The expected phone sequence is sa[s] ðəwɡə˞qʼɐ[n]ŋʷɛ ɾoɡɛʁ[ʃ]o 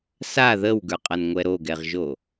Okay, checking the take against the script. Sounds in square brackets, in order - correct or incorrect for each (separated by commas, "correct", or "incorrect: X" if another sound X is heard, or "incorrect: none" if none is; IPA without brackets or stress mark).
incorrect: none, correct, incorrect: ʒ